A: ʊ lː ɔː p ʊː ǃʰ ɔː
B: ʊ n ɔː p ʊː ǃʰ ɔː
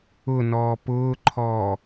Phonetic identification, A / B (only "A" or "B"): B